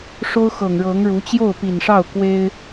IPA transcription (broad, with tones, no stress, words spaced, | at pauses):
ʂo˥ʊ̯xɤ˨˩ŋɻɤ˧˥ŋɻu˧˥ t͡ɕjo˥˩ʊ̯pi˨˩nʂɑ˥˩ʊ̯ kwe˥ɪ̯